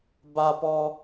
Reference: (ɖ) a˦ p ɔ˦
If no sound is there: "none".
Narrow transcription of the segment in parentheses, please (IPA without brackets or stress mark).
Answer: b